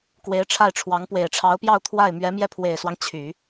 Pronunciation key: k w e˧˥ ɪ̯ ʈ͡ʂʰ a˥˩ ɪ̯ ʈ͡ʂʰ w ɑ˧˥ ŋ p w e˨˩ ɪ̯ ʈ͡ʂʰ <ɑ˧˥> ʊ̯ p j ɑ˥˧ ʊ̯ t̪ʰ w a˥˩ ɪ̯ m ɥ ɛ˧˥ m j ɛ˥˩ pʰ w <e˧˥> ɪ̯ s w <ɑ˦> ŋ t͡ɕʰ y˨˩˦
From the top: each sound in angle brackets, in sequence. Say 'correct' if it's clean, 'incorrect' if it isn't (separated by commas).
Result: correct, incorrect, correct